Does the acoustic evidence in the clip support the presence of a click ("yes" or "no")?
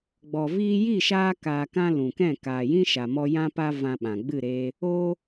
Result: no